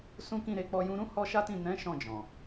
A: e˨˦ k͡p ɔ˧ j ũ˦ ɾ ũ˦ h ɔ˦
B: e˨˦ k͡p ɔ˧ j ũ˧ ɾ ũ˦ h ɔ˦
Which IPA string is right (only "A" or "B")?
B